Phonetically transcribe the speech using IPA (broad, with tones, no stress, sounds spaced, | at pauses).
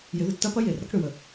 j ɪ˨˦ ð ɪ˨ tː ɐ˦ p ɐ˦ j e˨ r ɾ ɐ˦ k ɽ ʏ˨ w ə˨